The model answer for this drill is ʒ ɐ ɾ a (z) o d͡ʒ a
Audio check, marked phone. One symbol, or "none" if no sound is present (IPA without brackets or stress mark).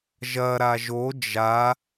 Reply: ʒ